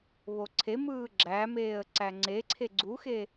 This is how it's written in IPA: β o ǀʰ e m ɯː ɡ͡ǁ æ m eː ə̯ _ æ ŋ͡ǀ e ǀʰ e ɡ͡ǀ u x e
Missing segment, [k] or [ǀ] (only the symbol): ǀ